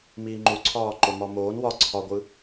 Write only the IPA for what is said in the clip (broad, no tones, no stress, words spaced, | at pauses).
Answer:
miːŋ͡ǃuǀʰɒː ǃomɒmoːn wɒ ǀʰɒɡʷɯ